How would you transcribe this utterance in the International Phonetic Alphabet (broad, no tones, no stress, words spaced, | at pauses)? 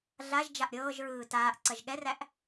ɮaʒd͡ʒaʔ ɾʲɤːʒɹɯː taːʔǀɐʒ ɠɛræʔ